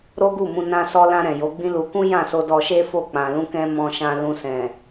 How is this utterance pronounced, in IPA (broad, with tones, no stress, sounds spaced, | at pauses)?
ɾ o˦ ɡ u˦˨ m ũ˧ n ã˧ s ɔ˧ l ã˧ ɾ ɛ̃˨ j o˨˦ ɡ͡b ĩ˦ l u˧ k ũ˦ j ã˦˨ s o˧ d ɔ˧ ʃ e˦ f o˦˨ k͡p ã˨ l ũ˧ k ɛ̃˧ m ɔ̃˧ ʃ ã˧ l ũ˧ s ɛ̃˨